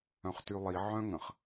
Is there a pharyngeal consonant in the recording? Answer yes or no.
yes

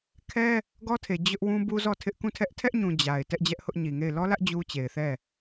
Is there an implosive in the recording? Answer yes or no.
no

